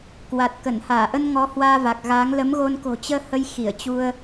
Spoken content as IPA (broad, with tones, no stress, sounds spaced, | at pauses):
k w a˨˩ t̚ k ə˧˩ n h aː˧˩ ʔ ə˧ n ŋ ɔ˨˦ h w aː˧ v a˨˩ k̚ ɣ aː˨˦ ŋ l ə˨˦ m ɣ o˧ n k o̤˨˩ t͡ɕ əː˧ h ə˧ j x i˧˩ ə̯ t͡ɕ u˧ ə̯